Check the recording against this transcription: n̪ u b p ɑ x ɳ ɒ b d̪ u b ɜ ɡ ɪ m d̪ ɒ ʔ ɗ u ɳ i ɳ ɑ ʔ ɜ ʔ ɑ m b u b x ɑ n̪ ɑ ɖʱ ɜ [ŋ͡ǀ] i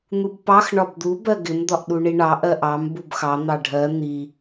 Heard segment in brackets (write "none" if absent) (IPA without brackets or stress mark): n̪